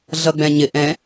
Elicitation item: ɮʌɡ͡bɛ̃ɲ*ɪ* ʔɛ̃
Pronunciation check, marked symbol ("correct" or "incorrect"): correct